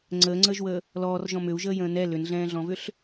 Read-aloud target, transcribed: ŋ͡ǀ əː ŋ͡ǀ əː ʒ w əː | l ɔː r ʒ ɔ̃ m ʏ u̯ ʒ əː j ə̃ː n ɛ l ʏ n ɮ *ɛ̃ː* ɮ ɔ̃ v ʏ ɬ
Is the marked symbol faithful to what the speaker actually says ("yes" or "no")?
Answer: yes